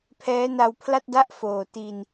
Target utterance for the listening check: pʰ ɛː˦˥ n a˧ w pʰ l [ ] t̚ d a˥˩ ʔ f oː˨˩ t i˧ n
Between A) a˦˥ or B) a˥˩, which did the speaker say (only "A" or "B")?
B